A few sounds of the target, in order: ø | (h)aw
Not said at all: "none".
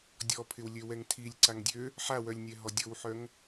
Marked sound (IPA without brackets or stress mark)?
ħ